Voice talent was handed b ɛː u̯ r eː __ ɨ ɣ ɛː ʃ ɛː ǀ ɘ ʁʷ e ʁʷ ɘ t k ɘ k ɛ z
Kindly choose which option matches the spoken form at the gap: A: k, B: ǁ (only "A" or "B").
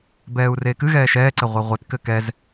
A